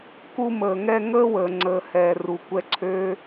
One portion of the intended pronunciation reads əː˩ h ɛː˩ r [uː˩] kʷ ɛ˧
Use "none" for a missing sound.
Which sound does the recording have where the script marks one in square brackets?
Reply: u˩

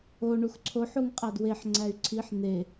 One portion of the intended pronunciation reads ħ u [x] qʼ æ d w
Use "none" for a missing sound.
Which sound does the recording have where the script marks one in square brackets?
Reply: ŋ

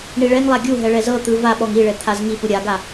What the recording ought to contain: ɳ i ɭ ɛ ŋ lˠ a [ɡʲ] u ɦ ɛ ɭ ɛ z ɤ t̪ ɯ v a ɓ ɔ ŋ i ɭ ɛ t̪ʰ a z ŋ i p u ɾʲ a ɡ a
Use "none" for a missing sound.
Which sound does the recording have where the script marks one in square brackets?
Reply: ɡʲ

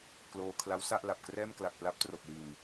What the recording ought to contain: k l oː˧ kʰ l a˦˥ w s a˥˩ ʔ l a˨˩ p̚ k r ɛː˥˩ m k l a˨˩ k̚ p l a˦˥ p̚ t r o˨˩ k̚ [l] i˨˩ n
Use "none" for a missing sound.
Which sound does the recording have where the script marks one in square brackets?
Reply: l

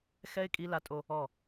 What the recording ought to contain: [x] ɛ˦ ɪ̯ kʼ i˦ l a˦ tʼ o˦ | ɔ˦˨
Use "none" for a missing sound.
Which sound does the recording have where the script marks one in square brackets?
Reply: x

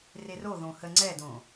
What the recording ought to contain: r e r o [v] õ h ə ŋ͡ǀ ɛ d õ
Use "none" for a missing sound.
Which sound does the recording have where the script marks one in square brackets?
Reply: ð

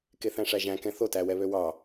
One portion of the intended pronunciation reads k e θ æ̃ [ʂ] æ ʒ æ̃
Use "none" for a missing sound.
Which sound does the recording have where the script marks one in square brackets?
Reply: ʂ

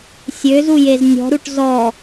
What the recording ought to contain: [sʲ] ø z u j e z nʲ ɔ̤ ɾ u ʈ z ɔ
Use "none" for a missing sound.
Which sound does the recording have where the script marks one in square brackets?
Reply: sʲ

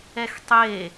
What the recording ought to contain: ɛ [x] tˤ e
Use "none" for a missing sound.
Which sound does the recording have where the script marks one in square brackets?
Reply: x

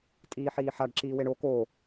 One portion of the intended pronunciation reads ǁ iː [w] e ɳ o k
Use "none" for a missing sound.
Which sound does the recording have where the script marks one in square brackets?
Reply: w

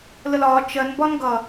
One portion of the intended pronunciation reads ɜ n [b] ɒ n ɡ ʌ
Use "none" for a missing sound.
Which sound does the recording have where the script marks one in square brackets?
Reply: b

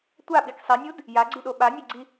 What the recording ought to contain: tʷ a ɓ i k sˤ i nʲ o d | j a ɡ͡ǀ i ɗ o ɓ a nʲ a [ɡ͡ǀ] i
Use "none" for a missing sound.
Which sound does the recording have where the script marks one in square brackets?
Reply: ɡ͡ǀ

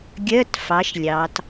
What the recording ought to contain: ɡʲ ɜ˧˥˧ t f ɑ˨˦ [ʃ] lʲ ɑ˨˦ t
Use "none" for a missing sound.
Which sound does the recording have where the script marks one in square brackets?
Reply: ʃ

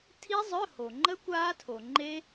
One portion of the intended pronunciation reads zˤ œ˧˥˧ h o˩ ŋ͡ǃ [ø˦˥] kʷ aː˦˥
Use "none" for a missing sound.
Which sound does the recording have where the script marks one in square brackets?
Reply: ə˦˥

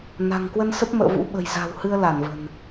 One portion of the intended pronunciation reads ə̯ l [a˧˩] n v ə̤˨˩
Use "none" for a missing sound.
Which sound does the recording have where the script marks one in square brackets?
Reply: a˧˩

